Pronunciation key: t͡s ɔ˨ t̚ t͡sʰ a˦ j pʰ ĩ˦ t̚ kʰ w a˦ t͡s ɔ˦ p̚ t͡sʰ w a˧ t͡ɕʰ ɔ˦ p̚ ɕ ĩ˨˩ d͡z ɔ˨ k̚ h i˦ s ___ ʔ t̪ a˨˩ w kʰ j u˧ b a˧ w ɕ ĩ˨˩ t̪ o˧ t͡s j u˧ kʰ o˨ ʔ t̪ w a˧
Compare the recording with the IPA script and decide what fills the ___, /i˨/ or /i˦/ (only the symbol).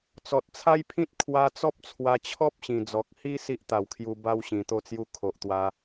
i˦